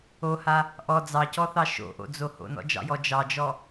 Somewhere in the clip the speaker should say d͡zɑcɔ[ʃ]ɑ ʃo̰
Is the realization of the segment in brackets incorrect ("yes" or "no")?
yes